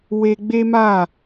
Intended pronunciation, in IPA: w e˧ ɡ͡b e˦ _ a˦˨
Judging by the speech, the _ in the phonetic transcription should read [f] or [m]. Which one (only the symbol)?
m